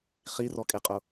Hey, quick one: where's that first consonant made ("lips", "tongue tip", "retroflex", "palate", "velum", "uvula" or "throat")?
uvula